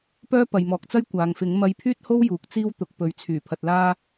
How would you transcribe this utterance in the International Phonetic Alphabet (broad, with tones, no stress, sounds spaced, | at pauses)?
p œː˥ p ɐ˨ j m ɔː˨ k̚ t͡s ɐ˥ j kʷ aː˨ ŋ f ɪ˨˥ ŋ m ɐ˧ j pʰ yː˥ t̚ h o˥ w j uː˨ k̚ t͡s iː˥ w t̪ ʊ˨ k̚ p ɵ˨ ɥ t͡sʰ yː˨˩ pʰ ɐ˧ t̚ l aː˥